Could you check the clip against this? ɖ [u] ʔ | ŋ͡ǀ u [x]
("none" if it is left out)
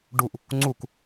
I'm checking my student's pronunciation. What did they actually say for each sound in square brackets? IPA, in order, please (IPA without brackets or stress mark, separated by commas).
u, k